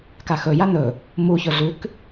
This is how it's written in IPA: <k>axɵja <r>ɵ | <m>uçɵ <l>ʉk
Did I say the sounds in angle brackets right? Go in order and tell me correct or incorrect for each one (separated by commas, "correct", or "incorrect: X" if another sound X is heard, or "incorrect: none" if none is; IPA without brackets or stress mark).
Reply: correct, incorrect: n, correct, incorrect: ɮ